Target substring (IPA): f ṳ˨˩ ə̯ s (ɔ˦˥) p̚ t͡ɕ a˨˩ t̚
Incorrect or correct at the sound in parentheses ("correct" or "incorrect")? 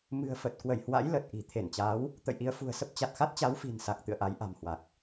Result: incorrect